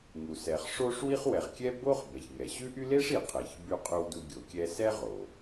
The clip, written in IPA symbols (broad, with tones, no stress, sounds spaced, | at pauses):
ŋ u˩ s ɛ˩ χ ʂ o˥ ʂ w i˥ χ w ɛ˩ ʁ kʲ ɛ˥ b o˥ χ b ɛ˩ ç ŋ ɛ˩ ɕ ʉ˥ ʔ y˥ l e˥ ʂ i˩ qʰ e˩ ç b y˧ qʼ ʉ˧ w d u˧ ɡʲ o˩ kʲ ɛ˧ s ɛ˥ ʁ o˩